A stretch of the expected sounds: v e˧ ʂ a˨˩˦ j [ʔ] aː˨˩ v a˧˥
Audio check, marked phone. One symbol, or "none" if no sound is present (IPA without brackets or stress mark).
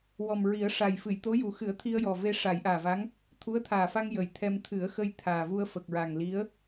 ʔ